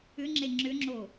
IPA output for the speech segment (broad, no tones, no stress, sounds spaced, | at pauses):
ʏ ŋ͡ǁ e ŋ͡ǁ ʏ ŋ͡ǁ o